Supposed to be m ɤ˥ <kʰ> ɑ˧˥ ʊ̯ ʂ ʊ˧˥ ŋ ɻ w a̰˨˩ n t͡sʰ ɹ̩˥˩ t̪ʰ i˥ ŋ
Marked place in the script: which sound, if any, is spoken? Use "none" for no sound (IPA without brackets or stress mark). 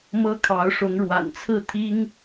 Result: kʰ